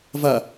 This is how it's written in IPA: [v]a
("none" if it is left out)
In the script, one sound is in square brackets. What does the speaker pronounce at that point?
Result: v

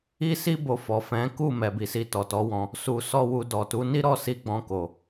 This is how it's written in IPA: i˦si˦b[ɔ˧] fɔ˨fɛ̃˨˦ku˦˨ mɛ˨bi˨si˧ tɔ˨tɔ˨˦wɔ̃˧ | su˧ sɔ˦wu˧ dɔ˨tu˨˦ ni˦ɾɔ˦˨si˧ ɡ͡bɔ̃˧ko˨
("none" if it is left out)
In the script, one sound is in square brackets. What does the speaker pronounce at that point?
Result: o˧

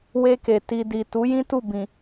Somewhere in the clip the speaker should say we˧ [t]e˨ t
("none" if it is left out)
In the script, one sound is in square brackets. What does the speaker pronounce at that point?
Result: k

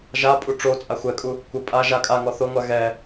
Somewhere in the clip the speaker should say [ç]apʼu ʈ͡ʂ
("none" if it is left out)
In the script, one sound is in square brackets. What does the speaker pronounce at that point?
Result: ʒ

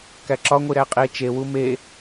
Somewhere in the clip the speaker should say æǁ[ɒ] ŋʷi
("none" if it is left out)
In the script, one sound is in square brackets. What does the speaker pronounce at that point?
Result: ɒ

